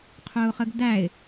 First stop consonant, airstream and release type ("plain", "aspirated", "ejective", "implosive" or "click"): aspirated